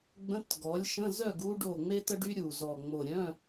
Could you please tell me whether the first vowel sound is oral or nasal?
nasal